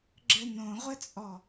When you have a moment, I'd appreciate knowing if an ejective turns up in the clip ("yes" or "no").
yes